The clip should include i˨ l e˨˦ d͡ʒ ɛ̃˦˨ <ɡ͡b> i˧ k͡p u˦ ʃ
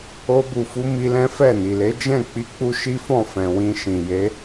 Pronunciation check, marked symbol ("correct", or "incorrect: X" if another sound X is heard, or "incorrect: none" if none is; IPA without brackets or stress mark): incorrect: k͡p